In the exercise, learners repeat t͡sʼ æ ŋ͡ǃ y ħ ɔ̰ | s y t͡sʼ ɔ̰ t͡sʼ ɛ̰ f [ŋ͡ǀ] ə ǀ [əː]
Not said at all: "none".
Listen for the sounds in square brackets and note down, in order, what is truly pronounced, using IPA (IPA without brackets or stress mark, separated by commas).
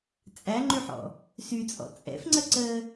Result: ŋ͡ǀ, əː